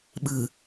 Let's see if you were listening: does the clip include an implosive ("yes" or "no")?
yes